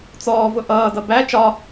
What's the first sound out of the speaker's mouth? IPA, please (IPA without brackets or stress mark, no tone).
t͡s